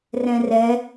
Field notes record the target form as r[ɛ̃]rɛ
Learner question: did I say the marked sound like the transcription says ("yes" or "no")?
yes